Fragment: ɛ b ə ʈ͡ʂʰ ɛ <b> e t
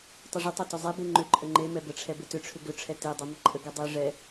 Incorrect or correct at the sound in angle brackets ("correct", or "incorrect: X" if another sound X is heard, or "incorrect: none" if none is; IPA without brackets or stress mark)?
correct